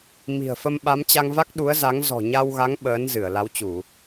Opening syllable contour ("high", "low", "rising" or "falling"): low